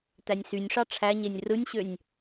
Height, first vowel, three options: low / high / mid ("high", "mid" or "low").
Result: low